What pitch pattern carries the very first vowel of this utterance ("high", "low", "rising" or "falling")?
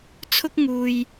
high